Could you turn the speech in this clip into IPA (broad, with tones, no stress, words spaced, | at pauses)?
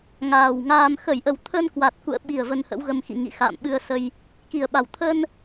ŋaː˨˩wŋaː˧m xə˧˩jʔə˨˩w t̪ʰə˧nkwa˨˩t̚ kṵ˧˨ə̯ɓi˨˩ə̯ və˧nhə̰˧˥wɣə˧mxḭ˧˨ ŋḭ˧˨ xa̰ː˧˨mɓɨ˧ə̯sə˧j | ki˨˩ə̯ɓa˨˩w t̪ʰə˧n